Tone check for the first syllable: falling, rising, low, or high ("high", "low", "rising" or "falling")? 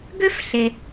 high